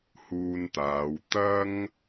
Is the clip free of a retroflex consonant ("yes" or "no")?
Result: yes